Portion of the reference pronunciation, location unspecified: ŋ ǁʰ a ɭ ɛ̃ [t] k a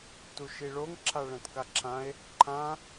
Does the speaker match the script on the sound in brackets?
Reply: yes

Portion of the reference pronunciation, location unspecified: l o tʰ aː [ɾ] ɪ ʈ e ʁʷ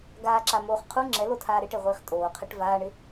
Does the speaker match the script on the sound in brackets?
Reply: yes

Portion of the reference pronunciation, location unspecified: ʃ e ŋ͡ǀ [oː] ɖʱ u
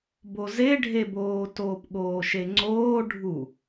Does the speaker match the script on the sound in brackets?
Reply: yes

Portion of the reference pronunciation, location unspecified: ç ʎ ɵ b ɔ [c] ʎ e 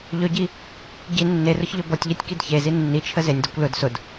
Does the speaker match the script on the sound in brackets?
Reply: no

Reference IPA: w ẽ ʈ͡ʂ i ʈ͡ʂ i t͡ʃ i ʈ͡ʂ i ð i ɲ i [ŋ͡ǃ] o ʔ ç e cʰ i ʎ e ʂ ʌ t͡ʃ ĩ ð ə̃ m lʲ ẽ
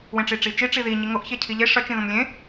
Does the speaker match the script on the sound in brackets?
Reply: no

